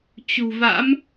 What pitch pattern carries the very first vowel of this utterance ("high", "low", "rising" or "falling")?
low